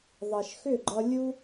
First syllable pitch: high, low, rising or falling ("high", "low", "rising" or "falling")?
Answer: low